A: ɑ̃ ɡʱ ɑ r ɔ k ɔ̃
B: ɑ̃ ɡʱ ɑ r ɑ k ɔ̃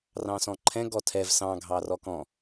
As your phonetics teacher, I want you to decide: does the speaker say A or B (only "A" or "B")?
A